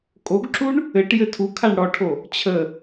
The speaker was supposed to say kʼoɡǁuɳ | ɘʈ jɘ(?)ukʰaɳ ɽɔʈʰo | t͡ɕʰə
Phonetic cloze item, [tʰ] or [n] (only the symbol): tʰ